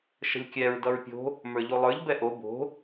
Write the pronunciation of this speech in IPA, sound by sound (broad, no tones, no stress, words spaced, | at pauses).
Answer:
ʃə̤lʲkʲɛɹ dʌɹpʲo̤ | mə˞ʎolˠə˞ʎ bɛʔo bo̤